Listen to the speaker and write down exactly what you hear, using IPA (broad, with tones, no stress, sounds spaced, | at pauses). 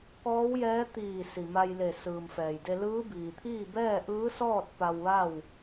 k ɔː˧˥ w j ɛː˧˥ t̪ iː˧˩ s i˩ m a˧ j l e˧˩ s ɯː˩ m f ɛː˩ j d e˧ l ɯː˧˥ b iː˩ t̪ʰ iː˥˨ b ɛː˥˨ ʔ ɯː˧˥ s ɔː˥˨ t̚ p a˧ w ʋ a˥˨ w